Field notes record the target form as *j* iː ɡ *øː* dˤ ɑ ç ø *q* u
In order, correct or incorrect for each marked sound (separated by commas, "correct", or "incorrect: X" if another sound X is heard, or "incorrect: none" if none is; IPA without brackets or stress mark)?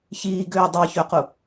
incorrect: ç, correct, correct